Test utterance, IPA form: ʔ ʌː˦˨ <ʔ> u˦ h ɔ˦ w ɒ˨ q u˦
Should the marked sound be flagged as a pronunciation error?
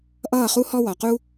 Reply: yes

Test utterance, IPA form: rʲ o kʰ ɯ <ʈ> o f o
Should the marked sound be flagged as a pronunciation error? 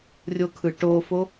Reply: no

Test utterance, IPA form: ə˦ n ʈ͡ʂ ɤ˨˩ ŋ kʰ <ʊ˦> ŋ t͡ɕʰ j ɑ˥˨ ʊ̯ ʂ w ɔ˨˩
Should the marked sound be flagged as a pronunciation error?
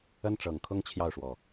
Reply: no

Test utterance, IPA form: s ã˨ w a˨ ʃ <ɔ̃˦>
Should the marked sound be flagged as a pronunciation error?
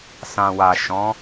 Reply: yes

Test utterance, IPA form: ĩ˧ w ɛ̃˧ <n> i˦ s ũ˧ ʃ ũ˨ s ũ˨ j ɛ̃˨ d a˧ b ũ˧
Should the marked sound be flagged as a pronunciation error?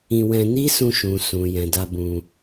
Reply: no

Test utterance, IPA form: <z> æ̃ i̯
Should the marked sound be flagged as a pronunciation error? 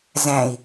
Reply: no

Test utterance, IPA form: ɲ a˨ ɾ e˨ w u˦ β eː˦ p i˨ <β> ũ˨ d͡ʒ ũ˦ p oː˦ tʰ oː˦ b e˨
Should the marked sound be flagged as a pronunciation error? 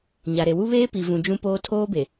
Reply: yes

